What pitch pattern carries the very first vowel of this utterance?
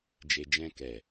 low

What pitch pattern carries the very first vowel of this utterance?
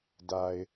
low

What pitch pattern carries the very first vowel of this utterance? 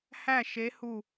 falling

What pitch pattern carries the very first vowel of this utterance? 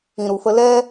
low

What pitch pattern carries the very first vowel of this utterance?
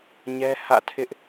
high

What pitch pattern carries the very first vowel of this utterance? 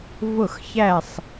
falling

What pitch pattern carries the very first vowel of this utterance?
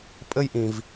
high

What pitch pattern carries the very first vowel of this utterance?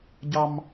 high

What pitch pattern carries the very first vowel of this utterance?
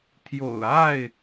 low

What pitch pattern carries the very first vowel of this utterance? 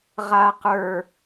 low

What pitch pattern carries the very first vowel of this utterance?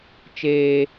high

